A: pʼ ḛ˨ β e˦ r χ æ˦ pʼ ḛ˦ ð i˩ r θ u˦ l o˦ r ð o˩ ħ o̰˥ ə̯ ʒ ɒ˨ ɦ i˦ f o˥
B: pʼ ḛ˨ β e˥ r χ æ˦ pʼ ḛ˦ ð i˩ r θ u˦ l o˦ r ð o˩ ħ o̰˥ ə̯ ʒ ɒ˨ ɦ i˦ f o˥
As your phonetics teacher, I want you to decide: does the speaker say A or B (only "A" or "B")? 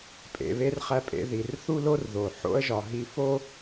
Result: B